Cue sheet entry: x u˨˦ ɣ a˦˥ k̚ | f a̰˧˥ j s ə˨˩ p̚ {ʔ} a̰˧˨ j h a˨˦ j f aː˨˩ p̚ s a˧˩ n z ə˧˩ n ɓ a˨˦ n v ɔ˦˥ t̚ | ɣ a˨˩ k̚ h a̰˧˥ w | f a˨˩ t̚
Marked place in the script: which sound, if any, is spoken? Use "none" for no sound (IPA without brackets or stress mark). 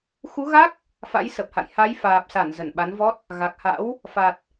h